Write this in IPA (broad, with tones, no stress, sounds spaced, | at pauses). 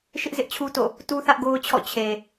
ʃ ɪ˦ ʔ z ɪ˦ ʔ t͡ɕʰ u˦ t o̰˦˨ | t u˦ θ ä˦ ʔ ɡ o˦ ʊ̯ t͡ɕʰ ɔ̰˦˨ t͡ɕʰ e˨